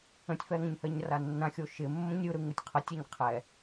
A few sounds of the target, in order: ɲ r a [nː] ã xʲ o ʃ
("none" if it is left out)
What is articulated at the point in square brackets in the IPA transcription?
nː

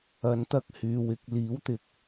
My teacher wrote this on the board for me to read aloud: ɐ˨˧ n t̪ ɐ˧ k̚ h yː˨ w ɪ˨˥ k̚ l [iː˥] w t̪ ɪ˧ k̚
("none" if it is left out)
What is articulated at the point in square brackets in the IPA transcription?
iː˨˥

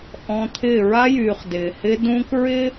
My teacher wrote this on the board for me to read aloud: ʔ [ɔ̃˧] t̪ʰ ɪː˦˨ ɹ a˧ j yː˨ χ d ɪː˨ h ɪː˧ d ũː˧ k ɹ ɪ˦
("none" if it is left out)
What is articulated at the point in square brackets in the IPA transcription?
ɔ̃˧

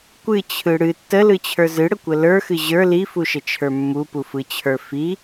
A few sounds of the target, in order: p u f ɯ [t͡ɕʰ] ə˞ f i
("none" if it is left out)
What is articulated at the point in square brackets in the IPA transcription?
t͡ɕʰ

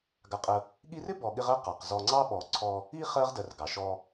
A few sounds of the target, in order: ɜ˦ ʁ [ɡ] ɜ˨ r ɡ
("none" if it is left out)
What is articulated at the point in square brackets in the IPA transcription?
d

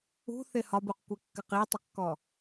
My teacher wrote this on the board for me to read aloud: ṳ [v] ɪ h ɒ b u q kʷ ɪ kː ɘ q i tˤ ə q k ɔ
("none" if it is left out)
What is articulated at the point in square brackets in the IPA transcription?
θ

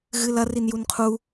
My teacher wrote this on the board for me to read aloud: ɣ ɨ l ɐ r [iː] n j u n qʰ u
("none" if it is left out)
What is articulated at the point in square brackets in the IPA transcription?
i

